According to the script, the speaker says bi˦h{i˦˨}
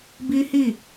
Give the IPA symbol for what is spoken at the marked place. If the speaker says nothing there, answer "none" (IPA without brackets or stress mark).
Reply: i˦˨